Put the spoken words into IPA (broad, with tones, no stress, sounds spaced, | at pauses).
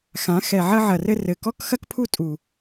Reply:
x ã˩˥ x ɛ˧˩ ʕ ɐ˥ ʕ ɐ˧˩ r ɘ˥ r ɘ˧˩ k ɔ˥ k x ɐ˥ k pʰ u˥ tʼ u˧˩